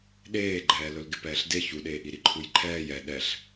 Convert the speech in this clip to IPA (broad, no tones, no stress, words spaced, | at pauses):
ɗeːɡ͡ǃɛːlɵl ɡɪpɛːɬde çuɗeːʔi ɾiǃʰujǃʰɛːj ɛ ɗɛɬ